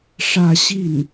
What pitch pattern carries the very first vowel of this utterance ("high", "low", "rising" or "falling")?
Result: falling